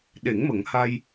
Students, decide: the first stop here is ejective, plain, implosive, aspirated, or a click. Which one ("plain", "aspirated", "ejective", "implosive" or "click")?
implosive